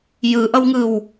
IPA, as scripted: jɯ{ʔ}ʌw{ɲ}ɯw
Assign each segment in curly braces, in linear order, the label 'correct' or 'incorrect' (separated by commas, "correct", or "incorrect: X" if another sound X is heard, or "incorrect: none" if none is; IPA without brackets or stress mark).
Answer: correct, incorrect: ŋ